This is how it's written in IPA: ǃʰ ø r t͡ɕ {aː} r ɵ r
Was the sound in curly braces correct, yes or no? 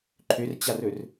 no